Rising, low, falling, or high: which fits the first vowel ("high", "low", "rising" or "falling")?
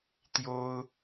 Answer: high